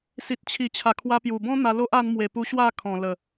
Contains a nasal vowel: yes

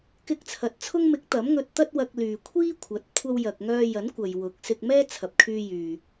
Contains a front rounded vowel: yes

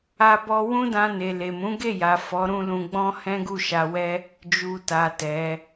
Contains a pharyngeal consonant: no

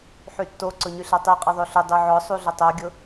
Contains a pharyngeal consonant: yes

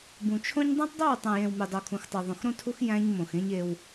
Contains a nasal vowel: yes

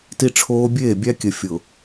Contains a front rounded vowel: no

